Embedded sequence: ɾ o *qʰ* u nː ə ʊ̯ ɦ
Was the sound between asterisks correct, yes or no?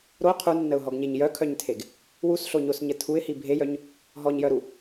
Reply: yes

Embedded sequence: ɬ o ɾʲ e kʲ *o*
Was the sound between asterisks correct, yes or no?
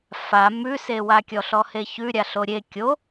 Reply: yes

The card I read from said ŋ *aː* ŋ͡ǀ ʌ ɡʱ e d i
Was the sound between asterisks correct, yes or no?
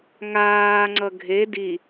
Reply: yes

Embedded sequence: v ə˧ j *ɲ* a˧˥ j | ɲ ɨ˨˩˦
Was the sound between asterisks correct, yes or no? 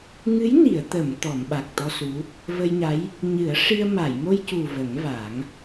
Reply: yes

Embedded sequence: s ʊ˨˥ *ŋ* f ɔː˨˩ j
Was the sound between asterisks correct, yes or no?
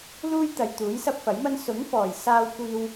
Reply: yes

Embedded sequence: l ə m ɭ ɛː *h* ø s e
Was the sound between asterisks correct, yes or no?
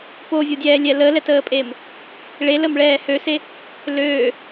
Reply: yes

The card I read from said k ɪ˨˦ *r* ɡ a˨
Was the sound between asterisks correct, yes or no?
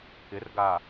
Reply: yes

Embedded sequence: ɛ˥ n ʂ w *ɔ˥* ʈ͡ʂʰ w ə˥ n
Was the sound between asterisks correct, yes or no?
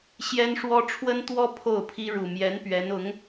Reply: yes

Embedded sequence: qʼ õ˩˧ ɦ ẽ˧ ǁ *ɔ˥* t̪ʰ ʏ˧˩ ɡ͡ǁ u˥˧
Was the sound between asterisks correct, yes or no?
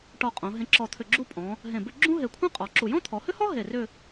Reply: no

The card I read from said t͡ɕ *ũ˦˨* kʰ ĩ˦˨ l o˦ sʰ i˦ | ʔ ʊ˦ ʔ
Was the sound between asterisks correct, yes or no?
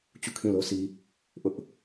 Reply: no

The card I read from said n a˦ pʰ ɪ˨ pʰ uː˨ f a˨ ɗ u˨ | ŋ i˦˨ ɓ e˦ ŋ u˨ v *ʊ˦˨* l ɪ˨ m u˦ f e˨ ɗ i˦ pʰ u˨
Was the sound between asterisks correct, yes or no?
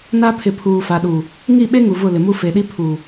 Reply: yes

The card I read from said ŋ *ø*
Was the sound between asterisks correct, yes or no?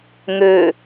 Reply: yes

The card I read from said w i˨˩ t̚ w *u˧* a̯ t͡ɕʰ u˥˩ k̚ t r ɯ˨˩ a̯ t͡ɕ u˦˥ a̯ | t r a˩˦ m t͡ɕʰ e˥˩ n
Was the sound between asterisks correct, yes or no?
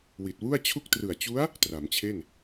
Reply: no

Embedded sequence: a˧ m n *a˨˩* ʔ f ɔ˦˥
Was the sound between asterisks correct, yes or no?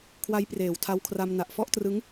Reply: yes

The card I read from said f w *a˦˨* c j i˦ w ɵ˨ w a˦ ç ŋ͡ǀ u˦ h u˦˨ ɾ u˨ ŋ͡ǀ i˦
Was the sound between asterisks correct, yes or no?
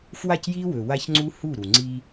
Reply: yes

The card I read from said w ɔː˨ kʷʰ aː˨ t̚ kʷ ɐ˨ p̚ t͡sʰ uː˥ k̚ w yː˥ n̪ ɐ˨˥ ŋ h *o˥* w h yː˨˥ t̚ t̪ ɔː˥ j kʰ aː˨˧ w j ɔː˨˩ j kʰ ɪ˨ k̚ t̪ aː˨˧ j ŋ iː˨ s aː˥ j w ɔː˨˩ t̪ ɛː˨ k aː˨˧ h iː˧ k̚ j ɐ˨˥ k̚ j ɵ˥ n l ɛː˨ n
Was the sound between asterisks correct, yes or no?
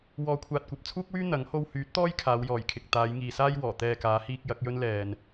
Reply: yes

